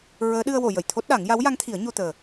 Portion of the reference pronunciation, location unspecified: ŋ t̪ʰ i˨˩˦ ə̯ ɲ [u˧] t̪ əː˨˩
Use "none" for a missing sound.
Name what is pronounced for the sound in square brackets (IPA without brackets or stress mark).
o˧